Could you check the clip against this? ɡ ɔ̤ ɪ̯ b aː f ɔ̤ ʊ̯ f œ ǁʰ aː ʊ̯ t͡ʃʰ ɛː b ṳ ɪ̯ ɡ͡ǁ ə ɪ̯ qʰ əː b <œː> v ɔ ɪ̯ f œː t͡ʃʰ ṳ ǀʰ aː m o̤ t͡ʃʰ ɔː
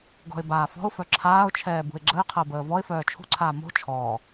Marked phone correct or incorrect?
incorrect